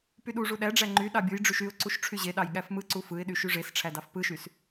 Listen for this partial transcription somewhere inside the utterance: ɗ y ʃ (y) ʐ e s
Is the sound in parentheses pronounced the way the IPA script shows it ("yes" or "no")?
yes